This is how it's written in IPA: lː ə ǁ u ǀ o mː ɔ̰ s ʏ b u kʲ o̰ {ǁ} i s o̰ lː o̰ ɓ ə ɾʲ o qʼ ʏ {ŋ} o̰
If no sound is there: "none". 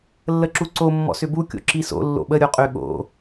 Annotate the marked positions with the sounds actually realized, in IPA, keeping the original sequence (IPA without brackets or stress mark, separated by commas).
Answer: ǁ, ɠ